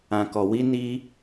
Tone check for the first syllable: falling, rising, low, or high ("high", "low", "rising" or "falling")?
low